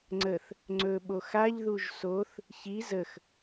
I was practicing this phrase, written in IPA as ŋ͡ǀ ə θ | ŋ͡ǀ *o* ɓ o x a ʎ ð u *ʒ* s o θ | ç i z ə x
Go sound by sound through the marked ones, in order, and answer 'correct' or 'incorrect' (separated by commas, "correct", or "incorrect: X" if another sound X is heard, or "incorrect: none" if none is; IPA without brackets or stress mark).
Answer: incorrect: ɵ, correct